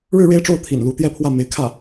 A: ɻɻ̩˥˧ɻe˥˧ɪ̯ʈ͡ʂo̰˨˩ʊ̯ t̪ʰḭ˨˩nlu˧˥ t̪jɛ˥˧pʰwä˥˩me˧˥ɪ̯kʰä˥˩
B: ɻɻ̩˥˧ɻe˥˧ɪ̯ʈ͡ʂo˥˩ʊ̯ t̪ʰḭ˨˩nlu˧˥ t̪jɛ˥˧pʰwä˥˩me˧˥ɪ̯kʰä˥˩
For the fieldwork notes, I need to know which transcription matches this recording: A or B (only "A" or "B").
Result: B